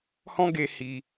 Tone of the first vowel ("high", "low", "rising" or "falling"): high